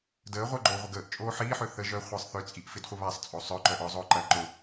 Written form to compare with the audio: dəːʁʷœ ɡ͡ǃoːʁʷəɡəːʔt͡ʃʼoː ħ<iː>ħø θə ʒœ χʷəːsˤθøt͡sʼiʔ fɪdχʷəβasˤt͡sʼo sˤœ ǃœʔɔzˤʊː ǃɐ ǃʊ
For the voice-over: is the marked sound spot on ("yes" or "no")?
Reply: yes